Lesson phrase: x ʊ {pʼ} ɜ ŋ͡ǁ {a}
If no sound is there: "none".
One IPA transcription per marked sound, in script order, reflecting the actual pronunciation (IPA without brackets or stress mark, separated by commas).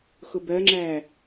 b, æ